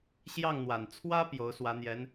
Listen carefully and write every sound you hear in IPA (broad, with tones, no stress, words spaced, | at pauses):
ɕjɑ˥˩ŋn̪wa˨˩n t͡sʰwä˥ pjo˧˥ʊ̯swä˧˥n̪jɛ˧˥n